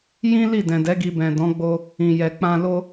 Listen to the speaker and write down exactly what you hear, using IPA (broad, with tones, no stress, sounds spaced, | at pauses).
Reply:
j ĩ˦ l i˦˨ d ɛ̃˨ d ɛ˨˦ ɡ i˧ b ɛ̃˨ d ɔ̃˨˦ ɡ͡b o˧ | ĩ˨ j ɛ˨ k͡p ã˧ l o˧